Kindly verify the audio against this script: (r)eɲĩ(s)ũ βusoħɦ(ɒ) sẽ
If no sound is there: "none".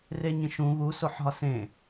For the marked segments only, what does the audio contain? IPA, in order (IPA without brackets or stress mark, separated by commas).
r, ʃ, ɒ